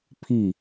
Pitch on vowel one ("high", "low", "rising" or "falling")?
falling